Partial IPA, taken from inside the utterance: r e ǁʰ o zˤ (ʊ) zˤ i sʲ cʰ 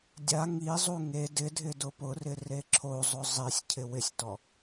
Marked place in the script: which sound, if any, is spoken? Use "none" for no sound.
ʊ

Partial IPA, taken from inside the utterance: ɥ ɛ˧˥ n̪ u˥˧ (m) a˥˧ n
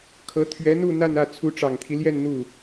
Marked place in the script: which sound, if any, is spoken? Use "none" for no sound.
n̪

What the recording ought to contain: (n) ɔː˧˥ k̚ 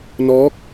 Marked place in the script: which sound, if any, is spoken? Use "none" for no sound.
n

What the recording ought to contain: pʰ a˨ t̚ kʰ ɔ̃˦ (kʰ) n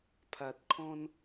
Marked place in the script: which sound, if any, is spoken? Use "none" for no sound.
none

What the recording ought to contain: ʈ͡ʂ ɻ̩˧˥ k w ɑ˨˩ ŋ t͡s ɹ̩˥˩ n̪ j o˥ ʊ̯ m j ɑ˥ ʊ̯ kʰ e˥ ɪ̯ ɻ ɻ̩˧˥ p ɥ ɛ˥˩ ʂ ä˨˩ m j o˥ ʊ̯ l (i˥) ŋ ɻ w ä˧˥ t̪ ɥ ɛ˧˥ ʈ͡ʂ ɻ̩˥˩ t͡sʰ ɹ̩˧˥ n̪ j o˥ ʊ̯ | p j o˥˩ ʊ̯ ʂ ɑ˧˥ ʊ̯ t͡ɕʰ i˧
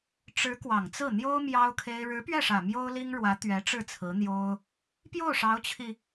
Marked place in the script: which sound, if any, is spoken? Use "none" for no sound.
i˥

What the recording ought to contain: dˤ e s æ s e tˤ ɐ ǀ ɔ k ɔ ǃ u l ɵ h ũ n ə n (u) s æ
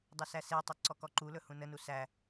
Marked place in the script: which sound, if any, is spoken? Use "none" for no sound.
u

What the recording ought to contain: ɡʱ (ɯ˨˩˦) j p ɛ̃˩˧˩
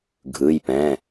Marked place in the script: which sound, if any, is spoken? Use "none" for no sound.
ɯ˩˧˩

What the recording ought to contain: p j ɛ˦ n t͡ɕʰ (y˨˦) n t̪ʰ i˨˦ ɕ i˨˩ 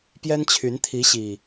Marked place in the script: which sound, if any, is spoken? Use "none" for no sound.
y˨˦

